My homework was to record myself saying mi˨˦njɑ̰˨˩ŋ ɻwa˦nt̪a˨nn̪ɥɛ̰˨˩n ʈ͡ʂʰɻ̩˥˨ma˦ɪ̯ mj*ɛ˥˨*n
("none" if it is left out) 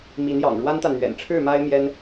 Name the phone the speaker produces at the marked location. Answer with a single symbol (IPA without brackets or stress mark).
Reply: ɛ˦